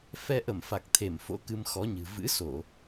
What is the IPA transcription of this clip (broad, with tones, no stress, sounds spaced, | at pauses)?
f ɛ˧ ʔ ə˧˩ m f a˨˩ k̚ t̪ʰ e˧˩ m f o̰˧˥ k ɨ˧ m x ɔ˨˦ ɲ ɨ̤˨˩ v ɨ̰˧˥ s o˧˩˨